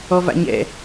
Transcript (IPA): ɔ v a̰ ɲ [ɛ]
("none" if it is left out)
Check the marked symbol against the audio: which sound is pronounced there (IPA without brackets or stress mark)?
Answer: ɛ̰